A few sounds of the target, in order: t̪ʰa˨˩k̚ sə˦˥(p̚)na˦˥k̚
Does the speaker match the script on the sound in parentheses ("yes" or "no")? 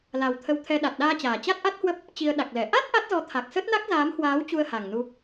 no